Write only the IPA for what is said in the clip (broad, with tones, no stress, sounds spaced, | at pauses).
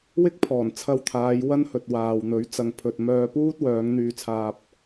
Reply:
w ɪ˥ k̚ pʰ ɔː˨˩ n t͡sʰ ɐ˧ w t̪ʰ aː˨˧ j w ɐ˥ n h ɵ˨ t̚ w aː˨ w n̪ ɵ˨˥ ɥ t͡s ɐ˨ ŋ pʰ ɵ˨ t̚ m œː˧ p uː˥ t̚ w œː˨˧ ŋ n̪ yː˧ t͡sʰ aː˧ p̚